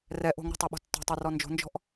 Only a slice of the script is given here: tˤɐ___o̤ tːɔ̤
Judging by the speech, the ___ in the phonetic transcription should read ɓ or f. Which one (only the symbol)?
ɓ